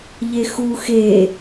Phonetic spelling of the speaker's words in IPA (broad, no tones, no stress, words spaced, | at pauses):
ʎexu xe